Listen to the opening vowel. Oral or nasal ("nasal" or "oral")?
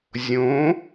nasal